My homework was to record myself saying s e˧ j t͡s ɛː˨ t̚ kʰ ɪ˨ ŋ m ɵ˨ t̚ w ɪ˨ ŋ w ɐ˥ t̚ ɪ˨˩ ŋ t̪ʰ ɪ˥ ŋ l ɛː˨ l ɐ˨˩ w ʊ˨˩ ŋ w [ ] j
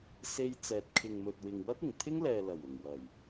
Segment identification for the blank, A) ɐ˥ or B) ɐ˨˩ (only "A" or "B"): B